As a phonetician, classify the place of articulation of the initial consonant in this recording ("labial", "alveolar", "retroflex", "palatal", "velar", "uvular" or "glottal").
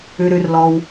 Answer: alveolar